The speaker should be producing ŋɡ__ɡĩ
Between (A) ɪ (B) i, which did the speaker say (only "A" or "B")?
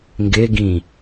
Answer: A